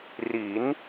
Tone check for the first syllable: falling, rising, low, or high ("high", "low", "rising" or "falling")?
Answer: rising